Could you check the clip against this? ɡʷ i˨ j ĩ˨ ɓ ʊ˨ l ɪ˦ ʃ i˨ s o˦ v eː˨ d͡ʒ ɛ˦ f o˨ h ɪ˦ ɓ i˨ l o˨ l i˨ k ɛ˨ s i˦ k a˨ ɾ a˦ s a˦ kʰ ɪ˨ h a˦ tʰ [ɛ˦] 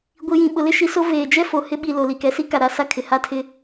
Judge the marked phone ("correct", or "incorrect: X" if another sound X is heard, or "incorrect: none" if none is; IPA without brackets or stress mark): incorrect: ɪ˦